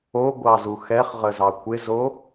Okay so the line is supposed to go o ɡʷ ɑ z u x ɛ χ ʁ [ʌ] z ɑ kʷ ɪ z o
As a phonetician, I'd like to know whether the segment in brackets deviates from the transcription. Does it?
yes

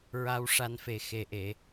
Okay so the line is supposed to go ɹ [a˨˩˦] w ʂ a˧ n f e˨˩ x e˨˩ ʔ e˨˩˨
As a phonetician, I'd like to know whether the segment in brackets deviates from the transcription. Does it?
yes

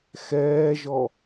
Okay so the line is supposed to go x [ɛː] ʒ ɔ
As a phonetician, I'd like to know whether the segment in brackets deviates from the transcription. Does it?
no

